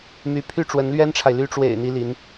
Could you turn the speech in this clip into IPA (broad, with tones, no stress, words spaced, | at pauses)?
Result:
my˧˥ pʰy˥ʈ͡ʂwə˧˥nlɥɛ˥nʈ͡ʂʰa˨ɪ̯ ly˧˥ʈ͡ʂwḛ˨˩ɪ̯ n̪i˥li˧˥n